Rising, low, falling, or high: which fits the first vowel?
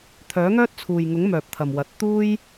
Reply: rising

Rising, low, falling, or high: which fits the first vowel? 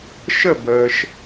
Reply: falling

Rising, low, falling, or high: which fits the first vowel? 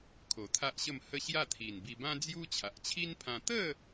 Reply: low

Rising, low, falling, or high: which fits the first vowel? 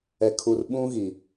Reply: low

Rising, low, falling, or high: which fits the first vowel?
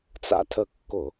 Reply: high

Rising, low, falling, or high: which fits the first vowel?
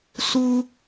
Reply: high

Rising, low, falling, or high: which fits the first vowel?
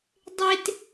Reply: high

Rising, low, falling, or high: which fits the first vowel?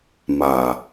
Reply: low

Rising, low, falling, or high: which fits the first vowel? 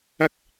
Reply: high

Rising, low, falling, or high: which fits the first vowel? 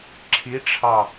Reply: rising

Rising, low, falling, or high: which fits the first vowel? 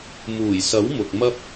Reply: low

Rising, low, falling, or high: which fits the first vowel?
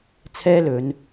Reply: high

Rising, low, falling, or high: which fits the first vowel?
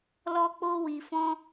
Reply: high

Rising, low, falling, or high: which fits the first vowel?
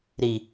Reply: low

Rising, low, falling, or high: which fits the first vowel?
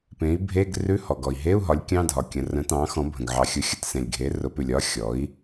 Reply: rising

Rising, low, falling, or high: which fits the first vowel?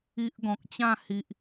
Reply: high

